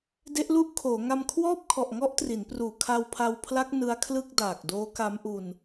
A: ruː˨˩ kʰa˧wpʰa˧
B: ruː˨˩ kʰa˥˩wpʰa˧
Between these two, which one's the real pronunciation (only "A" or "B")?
A